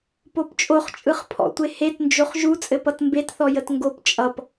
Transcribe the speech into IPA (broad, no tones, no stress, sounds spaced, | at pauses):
p o p t͡ʃʼ o χ t͡ʃʼ ɯ χ pʰ ɔ̰ tʷ e h e t n d͡ʒ o χ ʒ u t͡sʼ ɘ p ʌ t m b e t θ ɔ j ə t ŋ ɡ o p t͡ʃʼ ʌ p